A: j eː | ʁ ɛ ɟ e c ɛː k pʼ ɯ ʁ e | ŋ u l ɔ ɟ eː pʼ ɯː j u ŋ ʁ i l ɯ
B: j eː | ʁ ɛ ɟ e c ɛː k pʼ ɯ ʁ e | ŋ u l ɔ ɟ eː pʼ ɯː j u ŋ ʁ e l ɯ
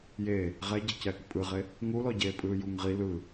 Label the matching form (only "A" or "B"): A